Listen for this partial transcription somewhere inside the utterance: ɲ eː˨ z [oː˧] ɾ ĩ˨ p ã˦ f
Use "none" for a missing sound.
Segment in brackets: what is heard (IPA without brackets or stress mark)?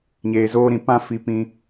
oː˧